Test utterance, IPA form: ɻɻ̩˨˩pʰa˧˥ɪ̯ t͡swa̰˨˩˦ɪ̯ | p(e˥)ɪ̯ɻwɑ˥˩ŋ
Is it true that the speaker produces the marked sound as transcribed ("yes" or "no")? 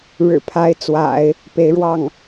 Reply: no